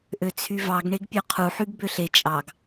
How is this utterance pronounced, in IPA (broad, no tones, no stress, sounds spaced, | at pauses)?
ʔ ø t͡sʰ y v ɑ ɡ ɳ e ɡ pʲ ø qʰ u ħ y ɡ b ø ɬ e t͡ʃʼ ɑ ɡ